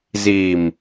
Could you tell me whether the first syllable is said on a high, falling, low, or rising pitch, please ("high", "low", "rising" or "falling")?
low